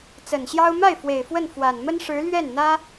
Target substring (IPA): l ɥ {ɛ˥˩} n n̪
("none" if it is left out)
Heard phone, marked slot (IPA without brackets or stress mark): ɛ˥˩